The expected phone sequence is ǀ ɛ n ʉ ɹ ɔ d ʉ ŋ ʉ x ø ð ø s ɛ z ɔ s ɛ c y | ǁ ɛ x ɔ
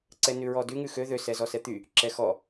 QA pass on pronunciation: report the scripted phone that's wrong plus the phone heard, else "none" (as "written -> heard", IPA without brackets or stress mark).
c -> t̪